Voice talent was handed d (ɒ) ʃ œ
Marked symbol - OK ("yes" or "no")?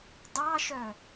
no